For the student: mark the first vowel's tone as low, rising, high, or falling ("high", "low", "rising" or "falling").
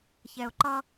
low